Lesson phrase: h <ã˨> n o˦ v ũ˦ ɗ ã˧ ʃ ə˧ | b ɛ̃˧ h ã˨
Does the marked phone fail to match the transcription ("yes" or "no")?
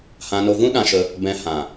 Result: yes